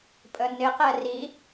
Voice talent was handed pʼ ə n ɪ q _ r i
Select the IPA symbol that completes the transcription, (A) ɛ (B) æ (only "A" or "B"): A